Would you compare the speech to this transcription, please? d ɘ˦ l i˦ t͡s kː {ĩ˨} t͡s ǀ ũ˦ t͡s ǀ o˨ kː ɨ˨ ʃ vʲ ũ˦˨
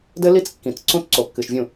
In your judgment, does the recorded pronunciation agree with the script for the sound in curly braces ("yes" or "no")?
yes